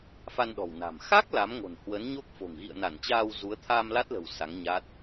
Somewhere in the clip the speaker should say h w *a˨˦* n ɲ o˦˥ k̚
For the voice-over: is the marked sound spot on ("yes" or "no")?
no